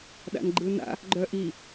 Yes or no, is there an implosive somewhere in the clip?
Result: yes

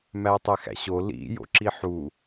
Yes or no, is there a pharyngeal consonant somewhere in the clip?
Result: yes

